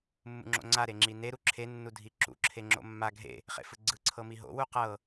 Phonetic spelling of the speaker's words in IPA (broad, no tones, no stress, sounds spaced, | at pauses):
mː ṵ ŋ͡ǁ o̰ ŋ͡ǀ a ɾ e ŋ͡ǁ i n e ɾ u ǁʰ e nː u dʱ i ǁ ṵ ǁʰ e ŋ͡ǁ o̰ mː a ɡʱ ḛ | χ ḛ f ɯ ɡ͡ǀ ɯ ǀʰ ɤ m i ɦ o̰ w u q ɤ